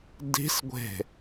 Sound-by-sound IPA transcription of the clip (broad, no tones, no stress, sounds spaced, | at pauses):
d i̤ s ɡʷ e̤